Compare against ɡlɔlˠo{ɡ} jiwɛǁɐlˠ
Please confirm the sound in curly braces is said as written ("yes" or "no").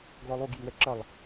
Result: yes